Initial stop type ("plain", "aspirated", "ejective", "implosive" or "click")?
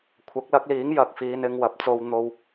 aspirated